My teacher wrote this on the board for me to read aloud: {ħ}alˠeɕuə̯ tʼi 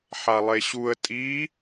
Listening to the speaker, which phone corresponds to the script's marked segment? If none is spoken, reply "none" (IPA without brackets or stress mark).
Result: ħ